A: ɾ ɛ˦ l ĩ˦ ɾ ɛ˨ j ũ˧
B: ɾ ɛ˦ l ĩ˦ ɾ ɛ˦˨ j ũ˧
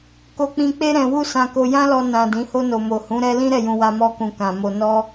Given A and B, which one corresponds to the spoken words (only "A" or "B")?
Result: B